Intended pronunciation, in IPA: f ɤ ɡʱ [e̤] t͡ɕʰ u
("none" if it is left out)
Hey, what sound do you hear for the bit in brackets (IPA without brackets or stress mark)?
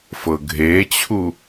e